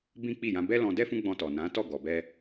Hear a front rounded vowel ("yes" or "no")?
no